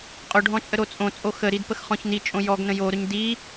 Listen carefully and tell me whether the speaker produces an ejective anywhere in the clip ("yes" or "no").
yes